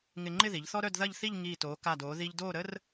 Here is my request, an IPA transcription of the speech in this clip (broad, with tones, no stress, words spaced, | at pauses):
ŋɪ˧ŋ͡ǃɪ˥˧ði˩˧ʎ θɔ˥ɾœ˥˧dðɐ˥˧ʎθi˥˧ʎ ŋiː˧˩toː˩˧ ka˧˩doː˩˧ ði˧ʎdoː˥˧ɾə˥r